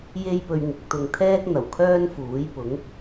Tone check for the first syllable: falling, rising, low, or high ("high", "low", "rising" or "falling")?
high